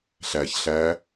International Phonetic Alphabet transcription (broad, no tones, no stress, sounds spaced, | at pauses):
ɬ æ ç ɬ æ